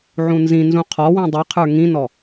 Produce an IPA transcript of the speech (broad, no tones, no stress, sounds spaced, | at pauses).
ʕ ũ n z ĩ n z ũ qʰ ɔ w ĩ dˤ i qʰ ə˞ ŋ ĩ n ɔ